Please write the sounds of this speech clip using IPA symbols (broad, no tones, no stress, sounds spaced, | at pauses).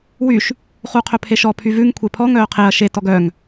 w y ʃ | χ u qʰ ɵ pʰ e ʃ ɔ pʰ y v ʉ ŋ kʷʰ e pʰ ɔ ŋ œː qʰ e ɐ̯ ʃ e t ɔ ɡ œ ŋ